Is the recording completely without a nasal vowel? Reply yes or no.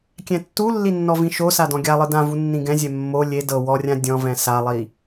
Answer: no